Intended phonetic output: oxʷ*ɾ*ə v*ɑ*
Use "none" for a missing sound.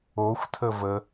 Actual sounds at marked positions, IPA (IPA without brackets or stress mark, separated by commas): tʰ, ə